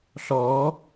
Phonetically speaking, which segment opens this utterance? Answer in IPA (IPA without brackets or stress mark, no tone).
ɬ